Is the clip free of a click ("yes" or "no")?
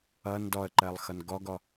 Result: no